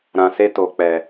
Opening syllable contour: low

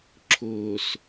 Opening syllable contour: low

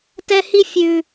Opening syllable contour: high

